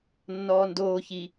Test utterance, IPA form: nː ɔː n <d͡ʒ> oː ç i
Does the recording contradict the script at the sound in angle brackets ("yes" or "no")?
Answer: yes